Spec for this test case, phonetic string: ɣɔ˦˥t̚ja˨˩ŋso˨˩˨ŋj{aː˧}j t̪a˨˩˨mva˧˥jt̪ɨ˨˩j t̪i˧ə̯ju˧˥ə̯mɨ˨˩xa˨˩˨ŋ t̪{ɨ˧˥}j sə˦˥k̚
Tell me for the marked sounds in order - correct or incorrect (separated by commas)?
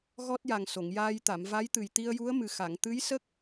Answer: correct, correct